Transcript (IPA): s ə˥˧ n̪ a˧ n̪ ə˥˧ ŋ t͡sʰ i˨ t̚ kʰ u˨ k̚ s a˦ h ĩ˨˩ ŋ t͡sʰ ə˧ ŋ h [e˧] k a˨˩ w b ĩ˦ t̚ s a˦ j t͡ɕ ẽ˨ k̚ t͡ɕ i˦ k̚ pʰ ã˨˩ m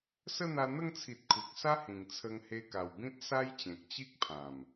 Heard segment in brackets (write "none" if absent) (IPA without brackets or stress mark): e˧